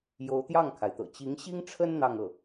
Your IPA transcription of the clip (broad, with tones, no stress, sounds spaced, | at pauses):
j o˧˥ ʊ̯ t̪ j ɑ˥˩ ŋ kʰ a˩ ɪ̯ t̪ ɤ̰˨˩ t͡ɕ i˧˥ ŋ ɕ i˥ ŋ ʈ͡ʂʰ ə˥ n n̪ ɑ˥˧ ŋ ɤ˥˩